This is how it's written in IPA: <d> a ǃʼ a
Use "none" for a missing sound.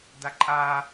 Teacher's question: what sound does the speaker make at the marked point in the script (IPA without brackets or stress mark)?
d